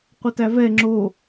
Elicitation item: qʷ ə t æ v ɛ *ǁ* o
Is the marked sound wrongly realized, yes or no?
yes